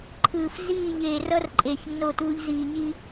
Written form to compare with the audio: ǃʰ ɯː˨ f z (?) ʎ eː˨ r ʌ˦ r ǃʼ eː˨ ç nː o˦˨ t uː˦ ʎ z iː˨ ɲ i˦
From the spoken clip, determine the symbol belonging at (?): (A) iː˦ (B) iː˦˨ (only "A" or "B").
B